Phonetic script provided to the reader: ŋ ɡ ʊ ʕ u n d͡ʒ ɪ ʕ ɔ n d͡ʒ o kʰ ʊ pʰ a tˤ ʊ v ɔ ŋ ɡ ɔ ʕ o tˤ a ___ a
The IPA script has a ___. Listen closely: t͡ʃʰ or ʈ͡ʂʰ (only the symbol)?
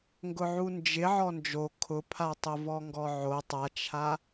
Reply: t͡ʃʰ